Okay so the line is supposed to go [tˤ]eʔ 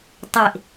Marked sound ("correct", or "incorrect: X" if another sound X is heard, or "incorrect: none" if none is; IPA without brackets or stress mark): correct